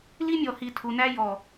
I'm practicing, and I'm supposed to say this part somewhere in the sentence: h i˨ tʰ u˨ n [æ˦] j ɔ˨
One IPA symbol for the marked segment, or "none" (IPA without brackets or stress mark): æ˦